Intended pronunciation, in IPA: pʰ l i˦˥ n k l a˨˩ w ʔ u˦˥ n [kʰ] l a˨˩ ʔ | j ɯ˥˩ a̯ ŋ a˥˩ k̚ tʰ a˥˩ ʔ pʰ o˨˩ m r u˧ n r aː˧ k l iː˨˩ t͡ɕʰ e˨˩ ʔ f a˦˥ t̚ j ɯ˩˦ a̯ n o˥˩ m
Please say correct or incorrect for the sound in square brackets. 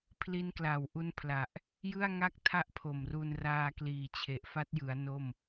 incorrect